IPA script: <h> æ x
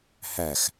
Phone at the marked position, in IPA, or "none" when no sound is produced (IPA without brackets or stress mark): h